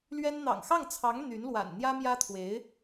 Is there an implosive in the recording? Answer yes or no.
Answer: no